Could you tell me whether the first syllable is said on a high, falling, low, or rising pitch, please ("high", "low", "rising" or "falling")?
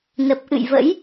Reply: low